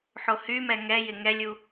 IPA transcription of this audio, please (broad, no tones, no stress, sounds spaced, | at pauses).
ħ o h y m ɛ ŋ ɛ j ɪ ŋ ɛ lʲ u